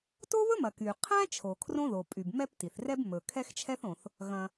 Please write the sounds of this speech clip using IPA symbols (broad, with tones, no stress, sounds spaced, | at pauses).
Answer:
t o˥ β ɵ˥ m ɐ˩ k y˩ qʰ æ̃˥ t͡ʃʰ o˩ kʰ r õ˥ ð o˩ pʼ y˩ b m ɛ˥ p t i˩ θ r ɛ˥ b m ɵ˩ kʰ ɛ˥ x t͡ʃʰ ɛ˥ θ õ˩ θ | ɣ ɐ̃˩